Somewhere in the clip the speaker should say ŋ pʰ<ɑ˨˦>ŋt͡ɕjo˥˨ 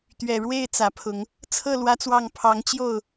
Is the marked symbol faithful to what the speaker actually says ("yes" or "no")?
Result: yes